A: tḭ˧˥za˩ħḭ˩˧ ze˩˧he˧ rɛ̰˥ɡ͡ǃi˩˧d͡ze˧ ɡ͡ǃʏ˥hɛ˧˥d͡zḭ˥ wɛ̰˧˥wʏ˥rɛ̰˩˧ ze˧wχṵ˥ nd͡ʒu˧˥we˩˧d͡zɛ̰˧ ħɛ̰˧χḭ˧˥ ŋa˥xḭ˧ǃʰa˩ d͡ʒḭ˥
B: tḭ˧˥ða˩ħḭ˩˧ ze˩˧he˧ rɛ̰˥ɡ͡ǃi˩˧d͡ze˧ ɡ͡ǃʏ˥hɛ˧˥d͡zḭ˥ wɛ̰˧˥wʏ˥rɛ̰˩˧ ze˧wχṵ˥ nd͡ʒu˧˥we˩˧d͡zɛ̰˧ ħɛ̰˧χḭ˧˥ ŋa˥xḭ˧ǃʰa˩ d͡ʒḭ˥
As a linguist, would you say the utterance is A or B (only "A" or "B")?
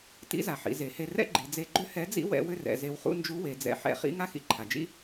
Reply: A